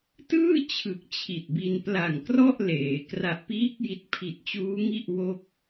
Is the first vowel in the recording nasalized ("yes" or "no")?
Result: no